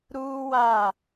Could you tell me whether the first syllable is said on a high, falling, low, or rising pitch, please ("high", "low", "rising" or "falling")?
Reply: high